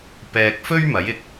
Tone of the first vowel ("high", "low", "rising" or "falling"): low